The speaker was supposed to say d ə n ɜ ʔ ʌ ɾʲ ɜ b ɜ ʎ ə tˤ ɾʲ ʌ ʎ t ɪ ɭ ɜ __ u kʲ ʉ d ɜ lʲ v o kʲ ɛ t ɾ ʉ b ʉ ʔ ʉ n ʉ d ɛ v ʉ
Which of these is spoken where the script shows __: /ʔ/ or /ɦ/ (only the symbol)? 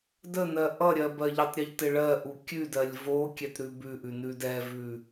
ʔ